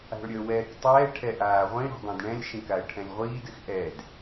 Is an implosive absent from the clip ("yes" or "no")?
yes